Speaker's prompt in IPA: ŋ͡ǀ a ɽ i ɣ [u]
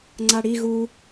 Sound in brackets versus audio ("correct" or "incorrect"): correct